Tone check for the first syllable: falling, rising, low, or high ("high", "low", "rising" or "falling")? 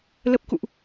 low